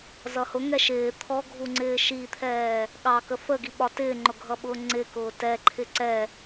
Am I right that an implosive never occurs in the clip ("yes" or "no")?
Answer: no